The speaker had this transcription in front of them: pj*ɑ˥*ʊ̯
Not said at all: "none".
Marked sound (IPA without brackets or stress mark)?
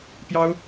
ɑ˥